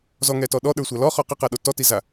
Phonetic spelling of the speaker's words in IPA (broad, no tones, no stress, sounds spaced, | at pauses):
z ɔ ŋ ɛ t ɔ ɗ ɔ ɗ ə˞ sʷ a l ɔ χ ɔ q ɘ q a ɗ o t ɔ t i z a